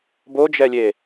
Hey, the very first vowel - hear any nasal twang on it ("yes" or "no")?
no